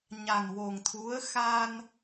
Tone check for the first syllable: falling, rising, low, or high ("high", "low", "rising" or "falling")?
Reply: low